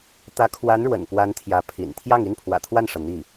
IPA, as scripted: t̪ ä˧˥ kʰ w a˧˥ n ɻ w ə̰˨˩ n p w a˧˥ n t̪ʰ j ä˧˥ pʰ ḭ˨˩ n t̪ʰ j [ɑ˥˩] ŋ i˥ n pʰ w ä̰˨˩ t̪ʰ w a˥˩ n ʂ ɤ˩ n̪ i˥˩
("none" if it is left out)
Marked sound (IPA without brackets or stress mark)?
ɑ˥˩